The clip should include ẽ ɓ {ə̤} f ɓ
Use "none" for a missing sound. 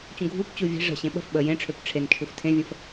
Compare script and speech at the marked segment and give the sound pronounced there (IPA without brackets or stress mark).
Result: ə̤